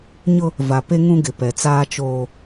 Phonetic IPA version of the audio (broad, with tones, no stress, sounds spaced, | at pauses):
ɲ ʊ˦ | v a˨ p e˦ ŋ ũ˦ ɡ ɪ˨ p ɛ˨ t͡s aː˦ t͡ʃ oː˦